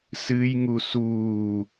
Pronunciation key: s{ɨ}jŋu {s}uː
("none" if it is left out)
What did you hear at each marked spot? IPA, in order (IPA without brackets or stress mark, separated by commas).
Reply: ɨ, s